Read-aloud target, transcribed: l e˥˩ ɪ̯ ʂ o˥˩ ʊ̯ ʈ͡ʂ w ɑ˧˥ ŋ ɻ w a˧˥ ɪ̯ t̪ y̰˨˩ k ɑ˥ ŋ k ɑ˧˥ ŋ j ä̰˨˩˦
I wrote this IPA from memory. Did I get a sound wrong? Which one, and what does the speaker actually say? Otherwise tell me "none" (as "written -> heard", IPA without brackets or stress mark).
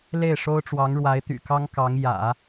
o˥˩ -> o˥